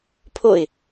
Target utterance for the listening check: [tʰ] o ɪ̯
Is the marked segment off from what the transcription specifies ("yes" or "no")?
yes